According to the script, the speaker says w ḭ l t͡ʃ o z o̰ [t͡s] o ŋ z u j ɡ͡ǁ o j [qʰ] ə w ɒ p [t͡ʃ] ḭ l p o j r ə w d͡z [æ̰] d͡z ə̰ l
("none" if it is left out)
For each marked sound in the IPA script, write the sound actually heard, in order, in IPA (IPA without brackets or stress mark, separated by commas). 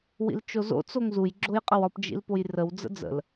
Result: t͡s, qʼ, d͡ʒ, ə̰